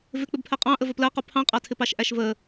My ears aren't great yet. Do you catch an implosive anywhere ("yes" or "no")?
no